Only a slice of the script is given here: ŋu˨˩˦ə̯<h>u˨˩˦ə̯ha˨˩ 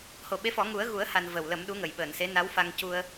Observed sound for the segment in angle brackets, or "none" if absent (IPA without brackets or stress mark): ɣ